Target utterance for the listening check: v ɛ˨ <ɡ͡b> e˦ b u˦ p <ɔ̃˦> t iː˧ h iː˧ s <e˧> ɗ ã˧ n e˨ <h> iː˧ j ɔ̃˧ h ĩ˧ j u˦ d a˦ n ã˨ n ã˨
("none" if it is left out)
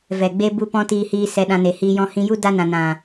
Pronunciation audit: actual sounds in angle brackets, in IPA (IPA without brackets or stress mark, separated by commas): ɡ͡b, ɔ̃˦, ɛ˧, h